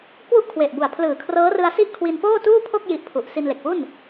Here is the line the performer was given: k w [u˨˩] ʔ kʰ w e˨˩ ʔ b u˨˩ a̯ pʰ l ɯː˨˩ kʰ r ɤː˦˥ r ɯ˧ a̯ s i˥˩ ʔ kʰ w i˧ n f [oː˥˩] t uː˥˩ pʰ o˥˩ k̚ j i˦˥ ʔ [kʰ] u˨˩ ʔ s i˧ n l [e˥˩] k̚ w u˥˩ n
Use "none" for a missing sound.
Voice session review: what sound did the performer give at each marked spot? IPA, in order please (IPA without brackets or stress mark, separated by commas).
u˥˩, oː˥˩, pʰ, e˨˩